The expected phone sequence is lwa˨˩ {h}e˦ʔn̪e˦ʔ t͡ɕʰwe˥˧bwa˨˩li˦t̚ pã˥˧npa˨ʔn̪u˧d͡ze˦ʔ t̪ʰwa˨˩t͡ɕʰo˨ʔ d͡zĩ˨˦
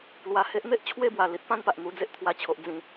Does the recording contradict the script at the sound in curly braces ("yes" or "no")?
no